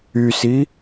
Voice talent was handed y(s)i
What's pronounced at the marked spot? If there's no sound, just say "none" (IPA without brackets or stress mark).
s